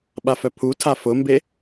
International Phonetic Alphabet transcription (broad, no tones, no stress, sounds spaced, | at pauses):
ɓ a f œ pʰ u tʰ a f ʊ m b e